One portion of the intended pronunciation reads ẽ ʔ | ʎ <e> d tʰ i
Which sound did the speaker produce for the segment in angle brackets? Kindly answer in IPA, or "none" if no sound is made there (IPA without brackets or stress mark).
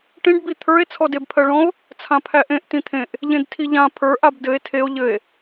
ẽ